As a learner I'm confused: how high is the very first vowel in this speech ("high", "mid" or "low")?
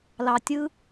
low